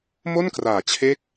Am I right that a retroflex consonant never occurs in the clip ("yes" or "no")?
yes